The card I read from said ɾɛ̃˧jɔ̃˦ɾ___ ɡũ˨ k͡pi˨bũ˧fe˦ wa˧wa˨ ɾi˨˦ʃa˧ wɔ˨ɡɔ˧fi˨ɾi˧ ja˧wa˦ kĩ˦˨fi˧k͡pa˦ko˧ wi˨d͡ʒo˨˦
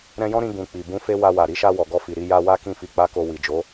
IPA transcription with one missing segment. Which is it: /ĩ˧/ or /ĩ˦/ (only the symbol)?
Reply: ĩ˧